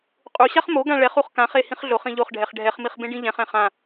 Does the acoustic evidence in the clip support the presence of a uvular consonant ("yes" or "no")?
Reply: yes